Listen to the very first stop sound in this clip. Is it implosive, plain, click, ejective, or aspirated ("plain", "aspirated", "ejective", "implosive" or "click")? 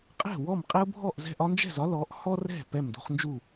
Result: ejective